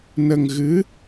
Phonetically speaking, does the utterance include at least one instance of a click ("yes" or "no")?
no